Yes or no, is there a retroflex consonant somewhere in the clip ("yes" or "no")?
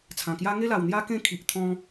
no